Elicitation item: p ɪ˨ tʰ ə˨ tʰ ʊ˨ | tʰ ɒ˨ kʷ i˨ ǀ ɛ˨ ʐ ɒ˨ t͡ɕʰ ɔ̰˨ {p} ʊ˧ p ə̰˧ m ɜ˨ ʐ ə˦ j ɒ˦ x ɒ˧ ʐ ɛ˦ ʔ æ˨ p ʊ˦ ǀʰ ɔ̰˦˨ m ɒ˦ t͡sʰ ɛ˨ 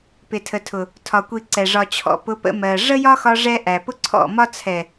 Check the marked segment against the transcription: correct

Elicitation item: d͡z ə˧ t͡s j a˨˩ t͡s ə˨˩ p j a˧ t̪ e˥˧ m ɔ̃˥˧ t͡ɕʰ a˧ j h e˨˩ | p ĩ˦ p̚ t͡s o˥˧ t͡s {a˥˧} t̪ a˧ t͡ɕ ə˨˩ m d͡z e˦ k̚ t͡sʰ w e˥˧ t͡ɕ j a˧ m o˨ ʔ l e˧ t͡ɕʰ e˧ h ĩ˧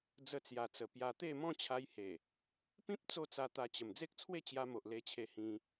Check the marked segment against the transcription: incorrect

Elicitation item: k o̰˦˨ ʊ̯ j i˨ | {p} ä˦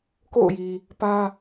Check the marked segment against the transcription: correct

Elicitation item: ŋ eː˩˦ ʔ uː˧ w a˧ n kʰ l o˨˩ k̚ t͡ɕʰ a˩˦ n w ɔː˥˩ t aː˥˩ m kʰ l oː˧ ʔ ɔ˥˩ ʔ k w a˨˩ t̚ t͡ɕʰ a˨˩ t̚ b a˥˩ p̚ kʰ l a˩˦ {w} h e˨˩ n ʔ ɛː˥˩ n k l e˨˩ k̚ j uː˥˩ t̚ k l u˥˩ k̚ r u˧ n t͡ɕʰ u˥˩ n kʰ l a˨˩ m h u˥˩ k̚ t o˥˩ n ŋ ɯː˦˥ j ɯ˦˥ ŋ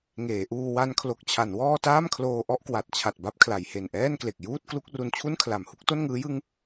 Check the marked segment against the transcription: incorrect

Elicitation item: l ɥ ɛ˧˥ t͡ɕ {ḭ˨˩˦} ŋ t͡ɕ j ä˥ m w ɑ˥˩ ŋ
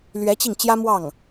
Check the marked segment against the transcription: incorrect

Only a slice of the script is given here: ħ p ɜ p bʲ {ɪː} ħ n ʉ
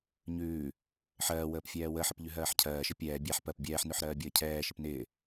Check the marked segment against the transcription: incorrect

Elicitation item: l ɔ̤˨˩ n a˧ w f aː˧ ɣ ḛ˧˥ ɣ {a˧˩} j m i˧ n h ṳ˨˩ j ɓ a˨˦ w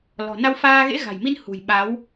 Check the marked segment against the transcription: incorrect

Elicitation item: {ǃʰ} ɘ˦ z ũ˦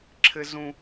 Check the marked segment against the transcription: incorrect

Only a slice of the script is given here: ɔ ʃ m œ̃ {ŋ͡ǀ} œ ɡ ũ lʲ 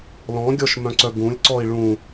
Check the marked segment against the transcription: incorrect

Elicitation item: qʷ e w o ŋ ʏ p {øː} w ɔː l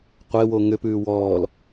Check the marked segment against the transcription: incorrect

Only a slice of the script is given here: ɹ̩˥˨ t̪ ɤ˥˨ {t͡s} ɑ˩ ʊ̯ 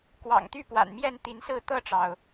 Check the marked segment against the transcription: incorrect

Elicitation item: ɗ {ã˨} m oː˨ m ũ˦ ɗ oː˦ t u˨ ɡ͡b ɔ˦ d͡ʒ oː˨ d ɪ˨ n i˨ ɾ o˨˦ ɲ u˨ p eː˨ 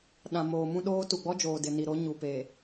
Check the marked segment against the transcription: correct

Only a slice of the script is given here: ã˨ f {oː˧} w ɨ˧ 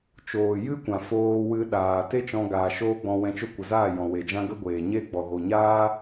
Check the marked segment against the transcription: correct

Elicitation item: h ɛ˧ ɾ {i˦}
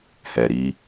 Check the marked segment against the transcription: correct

